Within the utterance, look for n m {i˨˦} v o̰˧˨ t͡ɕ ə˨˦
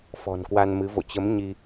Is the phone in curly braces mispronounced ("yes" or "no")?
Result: yes